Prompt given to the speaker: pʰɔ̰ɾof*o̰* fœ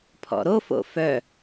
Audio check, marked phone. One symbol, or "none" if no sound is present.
o̰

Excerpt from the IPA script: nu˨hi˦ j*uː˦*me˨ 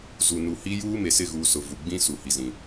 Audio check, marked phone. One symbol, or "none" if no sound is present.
uː˦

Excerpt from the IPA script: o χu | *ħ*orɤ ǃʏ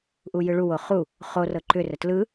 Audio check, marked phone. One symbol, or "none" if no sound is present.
χ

